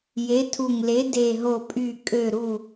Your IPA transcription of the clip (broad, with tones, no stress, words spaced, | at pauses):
je˨˥tʰu˧˩ŋle˨˥ de˧˩ɦo˧˩pʼy˧˩ kʼø˧˩ɾu˧˩